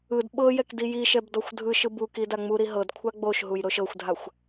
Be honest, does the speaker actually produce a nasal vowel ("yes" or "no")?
no